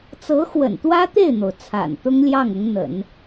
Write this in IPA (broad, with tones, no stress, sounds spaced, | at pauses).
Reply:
t͡s ɤ˧˥ x w ə̰˨˩ n t̪ w ä˥ t̪ e˥˩ ɪ̯ n̪ o˩ ʊ̯ t͡sʰ a̰˨˩ n t̪ ʊ˥ ŋ l j ɑ˥˩ ŋ ʊ˧˥ ŋ n̪ ə̰˨˩˦ n